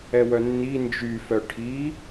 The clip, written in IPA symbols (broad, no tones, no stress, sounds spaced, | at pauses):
ɛ w œ nː i n d͡ʒ y f œ ʈʰ i